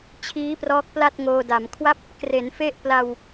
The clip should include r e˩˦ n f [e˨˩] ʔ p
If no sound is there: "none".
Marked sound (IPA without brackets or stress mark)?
e˥˩